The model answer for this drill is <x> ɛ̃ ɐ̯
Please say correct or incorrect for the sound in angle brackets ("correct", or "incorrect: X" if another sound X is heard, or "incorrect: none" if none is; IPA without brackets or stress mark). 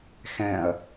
correct